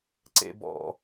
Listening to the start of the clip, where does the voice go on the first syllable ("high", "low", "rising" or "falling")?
low